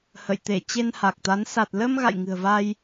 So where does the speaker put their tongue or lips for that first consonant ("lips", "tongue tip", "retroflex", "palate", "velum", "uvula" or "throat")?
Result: throat